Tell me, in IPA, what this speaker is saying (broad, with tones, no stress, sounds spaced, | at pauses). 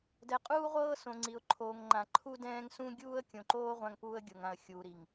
d ɛ˨ qʼ uː˦ ʁʷ ɤː˦ s õ˨ ŋ͡ǀ i˨ ʊ̯ ǃʰ oː˨ ŋ ŋ͡ǃ ã˨ ǃʰ u˦ d ɛ̃ː˦ ŋ s ũ˦ ɡʲ uː˦ ə̯ kʲ õ˨ ǃ oː˦ ʁʷ ã˦ ŋ p uː˦ ə̯ ɡʲ ɤ˨ ŋ ã˨ ə̯ xʲ uː˨ ɾ i˨ ŋ